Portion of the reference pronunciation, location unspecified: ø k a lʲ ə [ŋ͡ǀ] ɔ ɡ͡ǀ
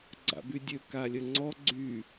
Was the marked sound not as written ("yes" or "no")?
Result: no